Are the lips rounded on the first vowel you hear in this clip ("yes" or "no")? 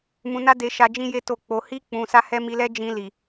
yes